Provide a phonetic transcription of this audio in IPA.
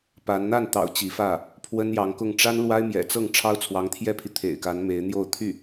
pa˧˥n n̪a˥˩nt̪ɑ̰˨˩ʊ̯ t͡ɕi˧˥fä˥˩ | pʰwə˥njɑ˧˥ŋkʊ˥˩ŋ ʈ͡ʂa˥nlwa˥ɪ̯mjɛ̰˨˩t͡sɤ˥˩ŋ ʈ͡ʂʰɑ˥ʊ̯t͡sʰwɑ˧˥ŋt̪ʰjɛ˥pʰi˨ t̪ʰḛ˨˩ɪ̯ka˧˥n me˧˥ɪ̯n̪jo˥˧ʊ̯t̪ʰy˥˩

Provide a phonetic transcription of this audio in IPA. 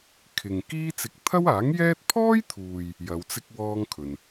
kʰɪ˨ŋ kiː˥t͡sɪ˧k̚ t̪ʰɐ˥waː˨˥ŋjɛː˥t̚ pʰɔː˥jt̪ʰuː˨j | jɐ˨˧wt͡sɪ˥k̚ wɔː˥ŋkʰɵ˨n

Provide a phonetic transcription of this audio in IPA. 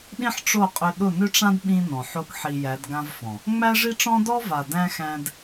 ɗĩ˦ħʈ͡ʂo˦˨qʼʏ˧ ɗʊ˦˨nʏ˦ʈ͡ʂã˦d ɓĩ˦nɔ̃˨ħo˦kħi˧ jæ˨˦dɡã˦vfɔ̃˨ | ŋ͡mæ˦ʐi˦ʈ͡ʂɔ̃˦ dɔ˦va˨ dæ̃˧ xæ̃˧d

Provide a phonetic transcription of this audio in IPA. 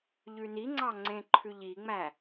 ʎʉniŋ͡ǀɑ ŋ͡ǀẽǃʰʉʎiŋ͡mæ

